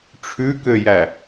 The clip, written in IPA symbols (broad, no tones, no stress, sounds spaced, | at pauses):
ʈ͡ʂʰ ʉ k ø j æ